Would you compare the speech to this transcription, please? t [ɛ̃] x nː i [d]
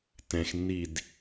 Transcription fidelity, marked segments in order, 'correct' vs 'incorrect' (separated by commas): correct, correct